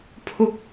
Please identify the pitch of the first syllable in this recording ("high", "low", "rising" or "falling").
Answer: high